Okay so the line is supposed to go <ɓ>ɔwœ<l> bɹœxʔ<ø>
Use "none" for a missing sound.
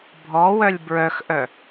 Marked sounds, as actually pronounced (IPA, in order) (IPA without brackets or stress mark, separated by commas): bʱ, lʲ, œ